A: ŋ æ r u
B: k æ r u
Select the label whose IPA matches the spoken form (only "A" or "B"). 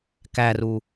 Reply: B